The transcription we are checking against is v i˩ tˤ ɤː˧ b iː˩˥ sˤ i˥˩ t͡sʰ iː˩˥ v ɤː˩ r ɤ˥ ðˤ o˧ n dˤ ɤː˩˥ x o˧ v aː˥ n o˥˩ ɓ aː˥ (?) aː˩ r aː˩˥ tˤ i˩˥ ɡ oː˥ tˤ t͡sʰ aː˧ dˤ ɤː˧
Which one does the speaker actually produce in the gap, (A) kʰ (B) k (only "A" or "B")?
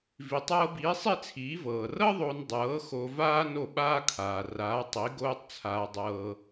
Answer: A